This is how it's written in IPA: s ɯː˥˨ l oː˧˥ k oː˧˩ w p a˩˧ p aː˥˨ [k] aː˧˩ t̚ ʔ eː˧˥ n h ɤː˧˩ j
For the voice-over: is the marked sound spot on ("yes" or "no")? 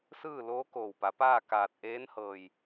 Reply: yes